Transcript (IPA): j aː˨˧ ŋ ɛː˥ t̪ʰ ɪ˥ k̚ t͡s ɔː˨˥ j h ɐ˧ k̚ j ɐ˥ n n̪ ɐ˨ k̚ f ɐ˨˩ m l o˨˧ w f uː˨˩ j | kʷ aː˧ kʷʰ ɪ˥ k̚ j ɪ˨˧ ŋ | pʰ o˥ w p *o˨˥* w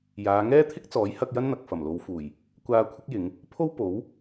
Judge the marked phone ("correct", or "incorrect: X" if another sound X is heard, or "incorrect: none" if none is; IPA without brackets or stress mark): correct